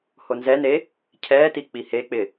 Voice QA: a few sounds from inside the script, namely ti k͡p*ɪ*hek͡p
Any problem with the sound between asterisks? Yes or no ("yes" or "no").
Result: yes